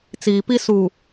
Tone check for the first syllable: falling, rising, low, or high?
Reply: low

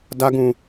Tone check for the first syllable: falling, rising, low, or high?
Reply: high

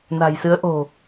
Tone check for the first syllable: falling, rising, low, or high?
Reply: low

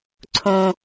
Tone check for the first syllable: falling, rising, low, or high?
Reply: high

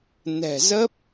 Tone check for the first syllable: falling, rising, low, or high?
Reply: low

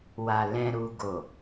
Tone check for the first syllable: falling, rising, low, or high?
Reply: low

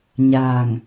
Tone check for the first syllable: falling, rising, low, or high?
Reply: low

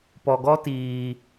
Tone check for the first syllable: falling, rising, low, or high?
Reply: low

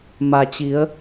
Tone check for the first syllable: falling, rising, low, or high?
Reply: low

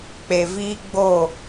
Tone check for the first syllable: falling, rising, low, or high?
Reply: low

